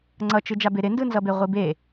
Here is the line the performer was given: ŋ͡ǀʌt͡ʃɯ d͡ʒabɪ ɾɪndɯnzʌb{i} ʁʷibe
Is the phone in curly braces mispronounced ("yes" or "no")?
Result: yes